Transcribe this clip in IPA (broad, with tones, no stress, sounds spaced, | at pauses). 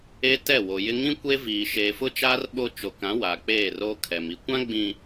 e˦ t ɛ˦˨ w o˨ j ɪ˦ ŋ ĩ˦ kʷ e˦ v iː˨ ʃ eː˨ f ʊ˦ t͡ʃ aː˦ r ɓ o˦ t͡ʃ o˨ k ã˨˦ w aː˨ k͡p eː˦˨ r oː˦ kʰ ɛ˨ m i˨ kʷ ã˦ ɡ͡b ĩ˨